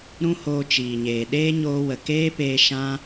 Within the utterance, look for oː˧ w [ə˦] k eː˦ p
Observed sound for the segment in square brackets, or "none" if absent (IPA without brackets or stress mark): ə˨